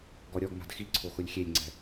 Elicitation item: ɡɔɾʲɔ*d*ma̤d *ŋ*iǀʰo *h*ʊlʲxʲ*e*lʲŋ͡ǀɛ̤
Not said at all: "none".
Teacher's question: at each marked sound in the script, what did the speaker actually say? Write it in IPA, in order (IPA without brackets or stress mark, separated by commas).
ɡ, x, x, e